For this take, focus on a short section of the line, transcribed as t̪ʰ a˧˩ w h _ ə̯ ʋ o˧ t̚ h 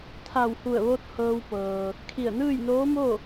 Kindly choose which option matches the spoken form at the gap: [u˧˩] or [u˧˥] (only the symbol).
u˧˩